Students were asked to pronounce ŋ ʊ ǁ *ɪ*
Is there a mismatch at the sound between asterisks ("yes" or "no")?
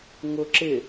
no